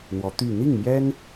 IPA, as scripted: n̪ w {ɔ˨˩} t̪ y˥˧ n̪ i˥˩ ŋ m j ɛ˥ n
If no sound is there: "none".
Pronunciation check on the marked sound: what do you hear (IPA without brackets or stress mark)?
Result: ɔ˧˥